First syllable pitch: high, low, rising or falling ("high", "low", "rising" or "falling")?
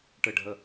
falling